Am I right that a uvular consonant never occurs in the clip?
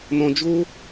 yes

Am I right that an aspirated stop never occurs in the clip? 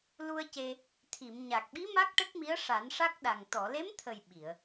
no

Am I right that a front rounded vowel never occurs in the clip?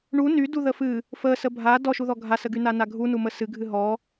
no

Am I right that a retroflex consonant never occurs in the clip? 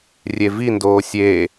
yes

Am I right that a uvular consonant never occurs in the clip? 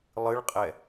no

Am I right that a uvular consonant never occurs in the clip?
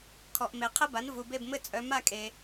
no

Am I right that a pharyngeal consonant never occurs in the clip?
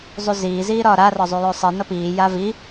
yes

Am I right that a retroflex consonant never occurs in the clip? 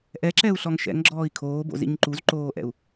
yes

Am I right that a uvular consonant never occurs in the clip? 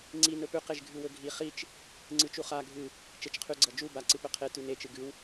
no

